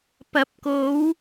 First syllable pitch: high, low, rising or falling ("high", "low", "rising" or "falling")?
rising